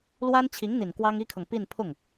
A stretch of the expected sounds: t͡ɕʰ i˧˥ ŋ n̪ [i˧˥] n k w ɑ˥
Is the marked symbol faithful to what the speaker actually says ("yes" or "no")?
no